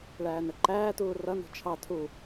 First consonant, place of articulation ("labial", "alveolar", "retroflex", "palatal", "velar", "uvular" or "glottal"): retroflex